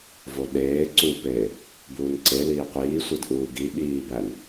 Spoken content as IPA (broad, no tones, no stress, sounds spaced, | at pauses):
v o ɗ eː ǀ u p eː | b uː n ǀ e l iː qʷ iː sʷ i d ʔ uː ɡ i ɓ iː b æ n